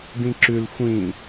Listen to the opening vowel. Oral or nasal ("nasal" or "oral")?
nasal